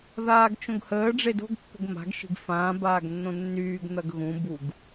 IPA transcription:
ð aː ɡ t͡ʃ õ ɡ h əː ɖ͡ʐ e d o̤ ɡ pː ə̤ ɡ m a̤ ɡ ʃ i̤ ɡ f ãː b aː ɡ nː õ nː yː ɡ n̪ ɐ ɡ ɣ ũ b u ɡ

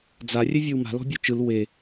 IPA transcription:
d͡z a rʲ ɛ vʲ ɔ w m a̤ l ɔ̤ bʲ u t͡ʃ ɯ l w e

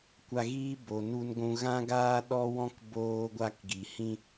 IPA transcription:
kʷ a˧ ɣ iː˦ b o˨ n u˧ n ɡʷ ũ˧ ɣ ã˦ ɡ aː˦ ɗ ɔ˦ w ɔ̃˦ k b oː˧ ɡʷ a˦ k ɡ i˨ h ĩ˦

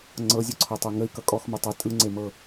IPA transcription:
ŋ͡ǀ ɤ zʲ o ǀʰ ɤ tˤ o ŋ ə i̯ k ʌ kʼ ɔ x m o tˤ ʌ tʼ ɯ ŋ͡ǀ e m ɤ

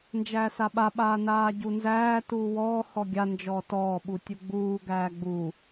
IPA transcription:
n d͡ʒ æː s a ɓ a ɓ aː n aː ɟ u n z æː t uː w ɔː h ɔ ɡʲ a n d͡ʒ ɔː t ɔː ɓ u tʲ u ɡ͡b uː ɡ æː ɡ͡b u

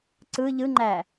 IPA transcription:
ǀ ɯ ʎ ɯ ŋ͡ǃ æ

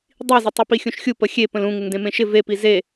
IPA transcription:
dˤ i z ɪ tˤ u p i xʲ ũ ʃ xʲ u p ə xʲ e p ə̃ l ũ ŋ ɪ ŋ d ẽ m ẽ ʃ ɪ v e p i z e

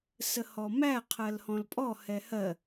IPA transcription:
s ə h ɔ m æ qʰ ɜ l h ɔ̃ l pʼ ɔ h ɛ h ɜ

